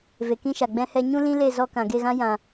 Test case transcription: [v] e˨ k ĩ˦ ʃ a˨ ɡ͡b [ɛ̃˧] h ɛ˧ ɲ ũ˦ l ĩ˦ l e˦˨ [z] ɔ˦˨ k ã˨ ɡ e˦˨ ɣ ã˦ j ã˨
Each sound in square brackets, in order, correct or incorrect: correct, correct, correct

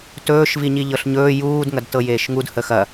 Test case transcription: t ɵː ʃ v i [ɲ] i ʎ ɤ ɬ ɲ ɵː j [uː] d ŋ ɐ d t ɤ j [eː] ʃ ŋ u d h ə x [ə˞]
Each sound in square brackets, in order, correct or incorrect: correct, correct, correct, incorrect: ɐ

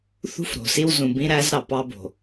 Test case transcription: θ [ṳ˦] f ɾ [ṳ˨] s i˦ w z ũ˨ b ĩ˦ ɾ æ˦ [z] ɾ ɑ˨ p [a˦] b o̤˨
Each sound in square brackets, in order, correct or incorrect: correct, incorrect: o̤˨, correct, incorrect: ɑ˦

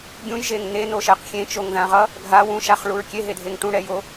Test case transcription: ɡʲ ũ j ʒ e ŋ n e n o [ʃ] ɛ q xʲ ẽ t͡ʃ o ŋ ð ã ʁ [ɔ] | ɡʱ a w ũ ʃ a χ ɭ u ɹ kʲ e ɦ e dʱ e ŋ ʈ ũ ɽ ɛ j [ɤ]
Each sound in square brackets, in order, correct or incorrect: correct, incorrect: ʌ, incorrect: o

